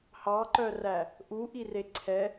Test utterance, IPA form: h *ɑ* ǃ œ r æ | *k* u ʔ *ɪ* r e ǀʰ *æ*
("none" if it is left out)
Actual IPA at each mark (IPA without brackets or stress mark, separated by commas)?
ɑ, ʔ, i, ɛ